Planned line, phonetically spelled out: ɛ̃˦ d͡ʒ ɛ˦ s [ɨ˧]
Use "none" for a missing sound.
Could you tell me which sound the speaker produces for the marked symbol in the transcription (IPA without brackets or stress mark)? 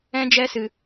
ɨ˧